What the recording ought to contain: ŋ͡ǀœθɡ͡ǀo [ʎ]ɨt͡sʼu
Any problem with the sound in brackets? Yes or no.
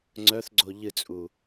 no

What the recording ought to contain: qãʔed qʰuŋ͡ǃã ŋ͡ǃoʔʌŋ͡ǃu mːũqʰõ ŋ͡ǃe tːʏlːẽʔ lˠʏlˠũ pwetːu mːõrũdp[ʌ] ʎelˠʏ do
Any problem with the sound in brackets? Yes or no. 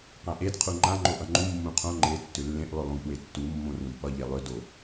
no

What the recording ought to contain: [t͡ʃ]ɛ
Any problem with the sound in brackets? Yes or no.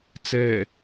yes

